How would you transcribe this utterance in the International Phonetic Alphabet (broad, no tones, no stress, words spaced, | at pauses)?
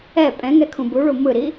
ɛ pʼɛ̃ŋɛkʰũ buɭu mɯɾi